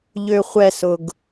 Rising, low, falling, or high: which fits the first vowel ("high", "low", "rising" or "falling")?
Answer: low